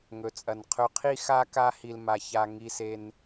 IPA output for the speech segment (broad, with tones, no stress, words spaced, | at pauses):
ŋɵ˨t͡sʼɐ˨n qʰɵ˧qʰi˦ xa˦ka˦ hi˧lma˧ ça˧ ŋi˧se˧n